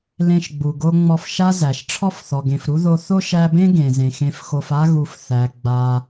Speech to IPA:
l ẽ˦ ʃ ɡ͡b u˨ ɡ o˦ ŋ͡m ɔ˦ f ʃ a˦ z æ˩ ʃ ʈ͡ʂʰ ɔ˦ f θ ɔ˩ ɡ ẽ˩ f ɾ u˦ ð o˦ θ o˥ ʃ æ˦ b ẽ˥ ɡ ẽ˩ z ẽ˩ x ẽ˨ f x o˨ f a˥ ɣ u˨ f θ æ˩ ɡ͡b a˨

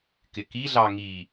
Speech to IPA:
k ɪ k i ɮ ɑ ŋ i

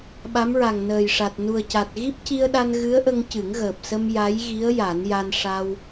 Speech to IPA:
ɓ a˧˥ m ɹ a˨˩ ŋ n əː˨˩ j ʂ a˨˩ t̚ n u˨˩ ə̯ c a˨˩ t̚ ɣ i˦˥ p̚ c i˧ ə̯ ɗ a˧ n ɣ ɨ˧˥ ə̯ ʔ ə˧ ŋ c ɨ˨˩˦ ŋ ɣ əː˨˩ p̚ s ə˧ m j a˧˥ j ɣ i˧˥ ə̯ j a˨˩˦ n j a˧ n ʂ a˧ w

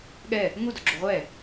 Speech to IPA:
ɠ ɛ | ŋ u d o ɡ͡ǁ u ʁʷ ɛ

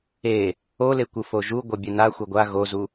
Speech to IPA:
e | o l e kʷ ɯ f o ʒ u ɡʷ ʌ bʲ e n a xʷ ʌ ɡʷ a ɣ o z u

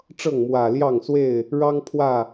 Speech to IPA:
ʈ͡ʂ ɤ˥˨ ŋ m w ä˨˩ l j ɑ˥˨ ŋ s w e˥˨ ɪ̯ | ɻ ɑ˦ ŋ pʰ w ä˥˨

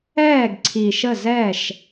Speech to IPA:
ɛː˦˨ ɡ ǀʰ i˨ ʃ ə˦˨ z ɛ˦˨ ʃ

